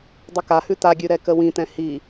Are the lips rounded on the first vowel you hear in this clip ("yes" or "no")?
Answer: yes